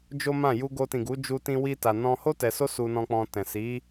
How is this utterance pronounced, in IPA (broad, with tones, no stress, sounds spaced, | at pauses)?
d͡ʒ o˦ m ã˦˨ j u˧ ɡ o˧ t ĩ˨ ɡ u˨˦ d͡ʒ u˧ t ĩ˧ w i˦ t a˧ n ɔ̃˧ h o˦ t ɛ˧ s o˦ s u˧ n ɔ̃˧ k͡p ɔ̃˧ t ɛ̃˨ s i˨˦